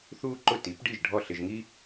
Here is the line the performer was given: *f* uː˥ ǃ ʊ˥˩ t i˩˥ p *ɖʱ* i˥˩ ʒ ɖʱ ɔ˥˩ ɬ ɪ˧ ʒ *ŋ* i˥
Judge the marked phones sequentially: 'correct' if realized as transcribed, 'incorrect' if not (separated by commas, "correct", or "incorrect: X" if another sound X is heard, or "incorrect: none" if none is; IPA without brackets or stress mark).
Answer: incorrect: θ, incorrect: ɖ, correct